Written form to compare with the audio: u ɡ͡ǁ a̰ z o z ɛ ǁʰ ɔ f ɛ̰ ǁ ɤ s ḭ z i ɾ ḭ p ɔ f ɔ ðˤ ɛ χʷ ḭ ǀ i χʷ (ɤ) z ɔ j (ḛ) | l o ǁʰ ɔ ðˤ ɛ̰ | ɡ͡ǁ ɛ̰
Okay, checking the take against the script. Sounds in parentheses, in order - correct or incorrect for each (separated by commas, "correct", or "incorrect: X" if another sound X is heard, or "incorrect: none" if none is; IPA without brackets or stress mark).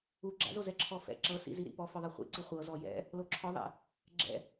correct, incorrect: ɛ̰